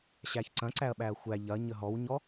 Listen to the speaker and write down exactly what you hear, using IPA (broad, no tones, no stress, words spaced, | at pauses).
ɕæçǀɐ̃ǀæɐ̯ɓæɐ̯ xʷæ ʎɐ ɲəɦɔwɲɔ